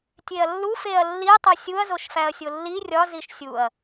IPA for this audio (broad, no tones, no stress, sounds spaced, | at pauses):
tʲ e ɐ̯ lː u f e ɐ̯ lː i tˤ o sʲ u ɐ̯ z o ʃ f æ ɐ̯ sʲ o lː i rʲ ɒ z i ʃ sʲ u ɐ̯